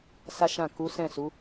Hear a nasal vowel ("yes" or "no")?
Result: yes